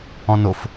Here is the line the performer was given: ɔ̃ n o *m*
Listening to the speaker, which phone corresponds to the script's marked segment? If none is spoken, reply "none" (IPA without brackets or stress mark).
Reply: f